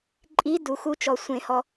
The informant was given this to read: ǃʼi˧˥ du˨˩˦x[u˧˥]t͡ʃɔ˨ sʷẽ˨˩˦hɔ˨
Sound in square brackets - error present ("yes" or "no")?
no